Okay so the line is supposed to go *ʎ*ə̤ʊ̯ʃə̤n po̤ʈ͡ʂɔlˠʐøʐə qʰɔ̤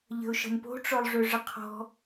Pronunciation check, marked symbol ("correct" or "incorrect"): correct